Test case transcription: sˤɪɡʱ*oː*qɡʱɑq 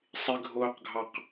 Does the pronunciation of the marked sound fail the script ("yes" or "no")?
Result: no